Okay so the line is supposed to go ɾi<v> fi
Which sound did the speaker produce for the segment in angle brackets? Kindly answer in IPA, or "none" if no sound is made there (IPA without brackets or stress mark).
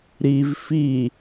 v